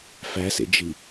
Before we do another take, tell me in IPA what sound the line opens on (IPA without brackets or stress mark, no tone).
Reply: f